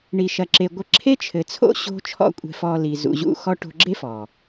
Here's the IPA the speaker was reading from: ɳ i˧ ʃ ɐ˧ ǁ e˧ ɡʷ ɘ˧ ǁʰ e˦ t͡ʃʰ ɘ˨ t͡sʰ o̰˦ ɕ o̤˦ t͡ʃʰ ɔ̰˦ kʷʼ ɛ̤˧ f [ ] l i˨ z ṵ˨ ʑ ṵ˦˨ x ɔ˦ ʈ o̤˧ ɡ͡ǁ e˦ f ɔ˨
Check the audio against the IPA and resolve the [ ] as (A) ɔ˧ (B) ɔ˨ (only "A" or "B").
A